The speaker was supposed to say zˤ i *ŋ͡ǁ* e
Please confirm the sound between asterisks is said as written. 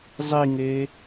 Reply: no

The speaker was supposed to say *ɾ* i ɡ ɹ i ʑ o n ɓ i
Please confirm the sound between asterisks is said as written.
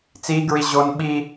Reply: no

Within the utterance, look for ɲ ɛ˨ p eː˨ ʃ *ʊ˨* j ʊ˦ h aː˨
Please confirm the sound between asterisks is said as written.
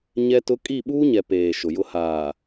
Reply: yes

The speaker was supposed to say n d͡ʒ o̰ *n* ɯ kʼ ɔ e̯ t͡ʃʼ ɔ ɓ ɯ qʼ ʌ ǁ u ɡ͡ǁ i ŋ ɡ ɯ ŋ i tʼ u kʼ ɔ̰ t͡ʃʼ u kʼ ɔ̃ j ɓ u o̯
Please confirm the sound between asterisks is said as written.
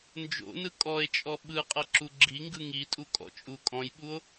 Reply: yes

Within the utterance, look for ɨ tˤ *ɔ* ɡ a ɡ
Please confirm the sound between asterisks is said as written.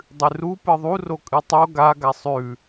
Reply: no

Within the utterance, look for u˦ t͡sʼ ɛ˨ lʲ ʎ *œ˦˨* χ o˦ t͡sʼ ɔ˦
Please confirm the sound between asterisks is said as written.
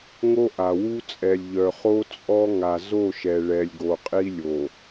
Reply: no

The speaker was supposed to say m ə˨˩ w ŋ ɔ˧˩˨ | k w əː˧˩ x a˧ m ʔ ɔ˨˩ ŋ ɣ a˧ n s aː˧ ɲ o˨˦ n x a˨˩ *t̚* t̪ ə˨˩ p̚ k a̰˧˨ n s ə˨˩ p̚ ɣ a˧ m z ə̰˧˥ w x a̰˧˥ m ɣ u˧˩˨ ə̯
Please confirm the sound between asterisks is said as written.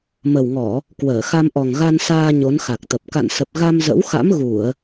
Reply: no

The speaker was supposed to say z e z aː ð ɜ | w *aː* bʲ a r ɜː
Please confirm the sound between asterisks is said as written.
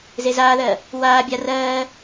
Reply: yes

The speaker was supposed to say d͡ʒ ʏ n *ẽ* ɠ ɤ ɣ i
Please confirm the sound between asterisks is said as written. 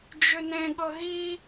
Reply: yes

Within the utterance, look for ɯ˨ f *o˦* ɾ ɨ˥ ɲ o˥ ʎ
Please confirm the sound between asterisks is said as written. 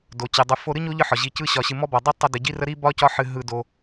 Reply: yes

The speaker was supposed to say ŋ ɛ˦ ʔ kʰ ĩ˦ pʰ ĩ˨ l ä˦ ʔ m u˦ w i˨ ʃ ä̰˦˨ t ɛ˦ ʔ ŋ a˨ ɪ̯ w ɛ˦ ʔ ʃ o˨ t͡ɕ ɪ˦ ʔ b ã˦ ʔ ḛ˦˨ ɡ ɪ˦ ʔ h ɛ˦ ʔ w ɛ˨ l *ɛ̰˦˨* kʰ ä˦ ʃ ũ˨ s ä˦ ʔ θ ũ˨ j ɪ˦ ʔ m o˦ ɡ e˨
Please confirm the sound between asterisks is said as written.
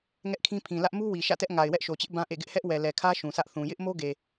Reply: no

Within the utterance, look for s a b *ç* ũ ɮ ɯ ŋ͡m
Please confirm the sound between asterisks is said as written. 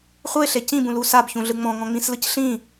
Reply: yes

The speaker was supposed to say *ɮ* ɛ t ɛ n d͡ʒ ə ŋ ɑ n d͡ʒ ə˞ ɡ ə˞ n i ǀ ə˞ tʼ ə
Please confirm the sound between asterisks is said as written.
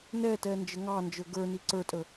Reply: no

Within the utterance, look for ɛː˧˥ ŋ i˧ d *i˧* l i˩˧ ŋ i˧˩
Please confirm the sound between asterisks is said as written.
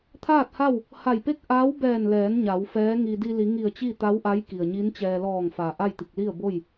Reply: yes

